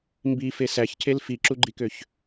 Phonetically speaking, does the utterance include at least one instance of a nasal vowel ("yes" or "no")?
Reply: no